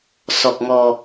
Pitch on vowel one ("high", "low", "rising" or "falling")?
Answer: low